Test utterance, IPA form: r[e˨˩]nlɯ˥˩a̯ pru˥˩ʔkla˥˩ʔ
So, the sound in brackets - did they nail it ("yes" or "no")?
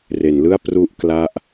no